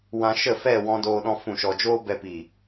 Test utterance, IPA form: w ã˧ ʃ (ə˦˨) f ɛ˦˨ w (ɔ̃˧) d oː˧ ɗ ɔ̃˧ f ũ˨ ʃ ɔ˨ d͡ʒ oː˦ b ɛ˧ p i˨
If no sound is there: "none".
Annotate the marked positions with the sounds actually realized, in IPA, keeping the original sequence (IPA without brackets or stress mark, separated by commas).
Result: ə˦˨, ɔ̃˧